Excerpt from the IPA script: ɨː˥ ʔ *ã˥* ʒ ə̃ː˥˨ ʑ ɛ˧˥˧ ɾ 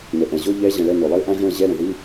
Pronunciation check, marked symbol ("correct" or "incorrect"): correct